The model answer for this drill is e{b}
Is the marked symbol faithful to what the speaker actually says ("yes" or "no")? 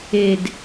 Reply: no